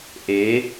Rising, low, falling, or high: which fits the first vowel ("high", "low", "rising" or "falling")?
rising